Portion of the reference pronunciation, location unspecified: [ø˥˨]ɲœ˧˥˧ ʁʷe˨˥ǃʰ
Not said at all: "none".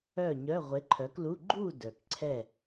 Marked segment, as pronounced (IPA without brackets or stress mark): œ˥˨